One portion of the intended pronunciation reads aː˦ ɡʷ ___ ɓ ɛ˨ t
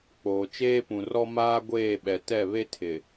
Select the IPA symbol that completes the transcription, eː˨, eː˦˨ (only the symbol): eː˦˨